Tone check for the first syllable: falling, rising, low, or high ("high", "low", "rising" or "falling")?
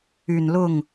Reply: low